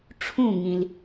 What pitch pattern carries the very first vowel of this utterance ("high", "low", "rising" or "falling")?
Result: falling